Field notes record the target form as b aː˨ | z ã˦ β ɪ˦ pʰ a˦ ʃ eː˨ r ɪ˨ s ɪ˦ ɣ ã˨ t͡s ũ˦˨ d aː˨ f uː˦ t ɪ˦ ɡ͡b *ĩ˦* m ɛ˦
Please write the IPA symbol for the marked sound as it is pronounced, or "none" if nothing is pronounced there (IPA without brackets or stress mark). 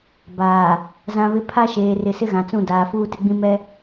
ĩ˦